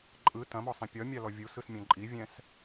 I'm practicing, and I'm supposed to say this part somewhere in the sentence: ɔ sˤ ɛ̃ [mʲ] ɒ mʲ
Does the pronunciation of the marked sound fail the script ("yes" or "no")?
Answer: yes